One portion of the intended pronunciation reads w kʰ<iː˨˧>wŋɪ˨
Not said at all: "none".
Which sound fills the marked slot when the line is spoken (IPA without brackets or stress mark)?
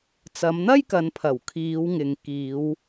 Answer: iː˨˧